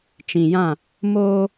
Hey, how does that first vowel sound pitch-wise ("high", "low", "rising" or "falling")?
low